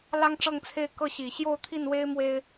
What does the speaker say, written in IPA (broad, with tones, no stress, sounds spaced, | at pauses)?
l ɑ˥ ŋ ʈ͡ʂ ɤ˥˧ ŋ t͡sʰ e˥˧ ɪ̯ k ɤ˥˩ ɕ i˨˩ ɕ j o˥˧ ʊ̯ t̪ʰ i˥˩ n w e˥ ɪ̯ m w e˥ ɪ̯